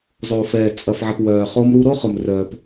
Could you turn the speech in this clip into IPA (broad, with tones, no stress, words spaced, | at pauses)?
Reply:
zˤoː˨fɛː˨ t͡sʼɐ˨fʕɐ˨p wœː˨ χo˦mɾu˦ ɾo˦χʊ˨mrœː˨p